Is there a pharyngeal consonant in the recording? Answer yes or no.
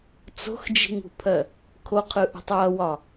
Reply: no